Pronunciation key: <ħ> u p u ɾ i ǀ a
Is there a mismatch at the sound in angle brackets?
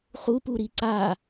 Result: yes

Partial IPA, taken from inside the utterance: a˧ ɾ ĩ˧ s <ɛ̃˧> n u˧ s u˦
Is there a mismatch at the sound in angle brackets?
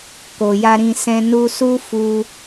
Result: no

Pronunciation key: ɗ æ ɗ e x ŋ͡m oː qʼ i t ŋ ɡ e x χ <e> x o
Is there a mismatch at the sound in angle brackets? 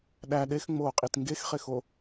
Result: no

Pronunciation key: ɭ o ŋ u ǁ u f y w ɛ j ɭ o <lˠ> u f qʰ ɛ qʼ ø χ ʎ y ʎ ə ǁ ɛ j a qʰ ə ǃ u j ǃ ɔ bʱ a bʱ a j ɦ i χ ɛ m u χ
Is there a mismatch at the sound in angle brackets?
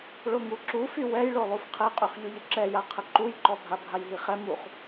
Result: no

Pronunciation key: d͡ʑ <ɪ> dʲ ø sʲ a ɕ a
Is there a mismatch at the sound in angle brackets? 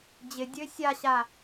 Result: no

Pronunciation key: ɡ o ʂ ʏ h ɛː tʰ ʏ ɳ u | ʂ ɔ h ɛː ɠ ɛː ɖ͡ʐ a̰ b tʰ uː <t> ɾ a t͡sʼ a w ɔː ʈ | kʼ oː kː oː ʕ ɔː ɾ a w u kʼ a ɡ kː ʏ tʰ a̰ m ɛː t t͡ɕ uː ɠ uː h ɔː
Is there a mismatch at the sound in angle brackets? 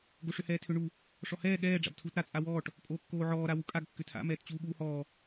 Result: no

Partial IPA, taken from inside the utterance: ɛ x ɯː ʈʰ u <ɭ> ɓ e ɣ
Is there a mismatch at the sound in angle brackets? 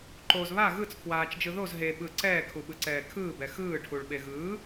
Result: no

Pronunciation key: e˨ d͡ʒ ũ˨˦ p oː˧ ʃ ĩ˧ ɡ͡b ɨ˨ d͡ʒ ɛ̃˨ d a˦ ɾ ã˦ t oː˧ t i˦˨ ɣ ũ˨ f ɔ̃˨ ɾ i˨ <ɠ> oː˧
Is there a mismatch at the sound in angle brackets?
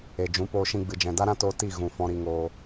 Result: yes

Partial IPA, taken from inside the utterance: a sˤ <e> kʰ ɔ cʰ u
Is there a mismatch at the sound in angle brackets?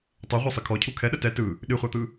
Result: yes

